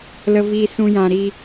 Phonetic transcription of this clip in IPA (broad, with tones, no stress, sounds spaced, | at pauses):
l ə˦ v iː˦ s ũ˦ j ã˧ ɾ i˦